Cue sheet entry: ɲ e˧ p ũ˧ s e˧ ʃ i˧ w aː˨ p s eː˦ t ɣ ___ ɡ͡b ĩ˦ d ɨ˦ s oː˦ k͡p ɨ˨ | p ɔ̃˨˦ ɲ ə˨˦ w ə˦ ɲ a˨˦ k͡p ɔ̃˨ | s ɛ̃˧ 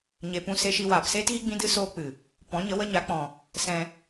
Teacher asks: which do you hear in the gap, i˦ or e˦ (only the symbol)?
i˦